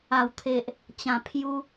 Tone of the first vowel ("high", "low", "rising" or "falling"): low